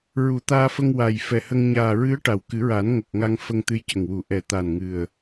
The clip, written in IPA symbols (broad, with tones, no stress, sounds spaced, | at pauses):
ɹ u˨˩˨ t̪ aː˧ f ə˧ ŋ w a˨˩ j f ɛ˨˩ h ə˧ ŋ ɲ aː˨˩ ɹ ɨ˧˥ ə̯ ʈ a˨˩˨ w k ɨ˨˩˦ ɹ a˨˩˦ n ŋ ə˨˩ k̚ ŋ a˧ ŋ f ə˧ ŋ t̪ ɨ˧ j c ə˨˩ ŋ w u˨˩˨ ʔ ɛ˨˩˨ t̪ a˨˩ n ŋ ɨ˨˩ ə̯